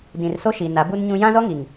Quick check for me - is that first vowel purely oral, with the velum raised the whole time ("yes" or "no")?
no